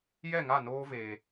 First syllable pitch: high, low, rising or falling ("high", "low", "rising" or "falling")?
falling